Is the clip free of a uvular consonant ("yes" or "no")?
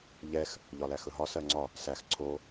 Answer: yes